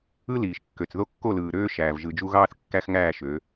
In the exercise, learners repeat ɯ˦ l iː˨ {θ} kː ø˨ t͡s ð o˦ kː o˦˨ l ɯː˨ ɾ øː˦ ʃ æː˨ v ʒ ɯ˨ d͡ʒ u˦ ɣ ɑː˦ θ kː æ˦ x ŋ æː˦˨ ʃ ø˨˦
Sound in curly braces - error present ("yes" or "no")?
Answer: yes